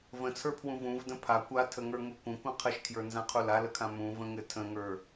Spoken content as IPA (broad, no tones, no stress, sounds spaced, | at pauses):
v ə̃ t͡sʰ ə˞ pʰ w ũ v ũ v d ə̃ pʰ a kʷ a tʰ ə ŋ ə˞ ŋ u kʷ ə̃ kʷ ə̃ qʰ ɘ ʃ kʰ j ə˞ n z ã qʰ u l a l ə kʰ ã m ũ v ə̃ ŋ ɘ tʰ ə̃ ŋ ə˞